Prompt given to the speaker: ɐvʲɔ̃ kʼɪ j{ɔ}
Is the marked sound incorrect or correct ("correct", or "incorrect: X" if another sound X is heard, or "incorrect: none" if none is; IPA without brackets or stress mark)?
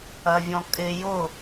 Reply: incorrect: ʊ